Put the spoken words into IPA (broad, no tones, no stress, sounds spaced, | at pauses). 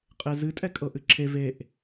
qʼ e z ɨ tʼ ɛ kʼ ɤ ʔ ɨ ǁʰ e v e ʔ